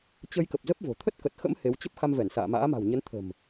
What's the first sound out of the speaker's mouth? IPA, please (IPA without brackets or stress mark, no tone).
t͡ɕ